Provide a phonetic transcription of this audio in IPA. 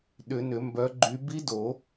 ɗ ʏ˨˩˦ n ʏ˨˩˦ m b œ˨˦ ɡ͡ǃ y˨˦ b i˦˥ d o˨˩˦

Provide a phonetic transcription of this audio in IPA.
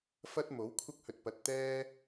f ɐ˥ t̚ m o˨˥ w kʷʰ ɐ˥ k̚ h ɵ˧ t̚ p ɐ˨ t̚ t̪ ɛː˥

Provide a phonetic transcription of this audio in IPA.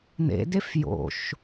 n̪ ḛ d e f j o̰ ʃ

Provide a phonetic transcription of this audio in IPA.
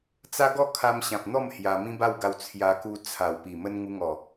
t͡s a˦ ɡ ɔ˥˧ kʰ a˧ m ɕ ã˨ p̚ n̪ ɔ˥˧ m h j a˧ m ĩ˦ b a˥˧ w ɡ a˧ w t͡sʰ j a˧ k u˧ t͡sʰ a˨˩ w p i˨˩ m ə˧ n ŋ u˧ ŋ ɔ˨˩

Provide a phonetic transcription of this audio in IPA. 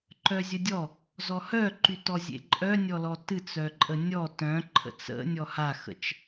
ǃ œ zʲ ə dʲ ɔ | z ɔ h œ ǃ y t ɔ zʲ ḛ ǃʼ œ nʲ ɔ l ɔ t ɨ t͡s œ ǃʼ ə nʲ ɔ t œ̃ ǃʰ ə̰ t͡s ə̰ nʲ ɔ h a x ə̰ t͡ʃ

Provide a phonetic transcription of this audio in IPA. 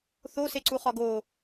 θ o s e ǀ u χ ɒ ɡ o

